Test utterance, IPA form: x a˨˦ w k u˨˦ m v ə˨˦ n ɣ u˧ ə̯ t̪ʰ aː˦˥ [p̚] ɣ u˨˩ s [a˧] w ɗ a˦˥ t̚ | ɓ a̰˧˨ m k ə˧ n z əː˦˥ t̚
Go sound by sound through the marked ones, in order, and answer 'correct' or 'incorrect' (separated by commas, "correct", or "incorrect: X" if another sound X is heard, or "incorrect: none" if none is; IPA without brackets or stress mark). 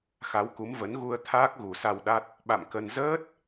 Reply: incorrect: k̚, correct